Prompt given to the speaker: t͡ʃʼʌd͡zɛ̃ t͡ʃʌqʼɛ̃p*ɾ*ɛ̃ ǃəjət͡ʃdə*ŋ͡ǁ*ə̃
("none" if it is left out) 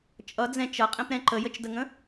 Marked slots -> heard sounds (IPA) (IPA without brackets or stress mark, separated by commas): ɾ, ŋ